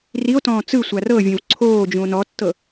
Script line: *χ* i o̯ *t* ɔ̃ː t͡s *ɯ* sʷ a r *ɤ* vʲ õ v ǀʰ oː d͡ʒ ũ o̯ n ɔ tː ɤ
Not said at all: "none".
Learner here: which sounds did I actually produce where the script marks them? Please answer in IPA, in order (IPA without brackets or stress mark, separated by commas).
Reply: r, t, ɯ, ɤ